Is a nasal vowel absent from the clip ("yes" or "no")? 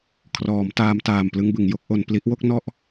yes